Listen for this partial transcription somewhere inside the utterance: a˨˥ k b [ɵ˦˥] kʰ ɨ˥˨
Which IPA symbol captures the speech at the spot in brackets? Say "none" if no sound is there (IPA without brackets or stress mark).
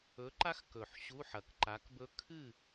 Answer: ɵ˦˥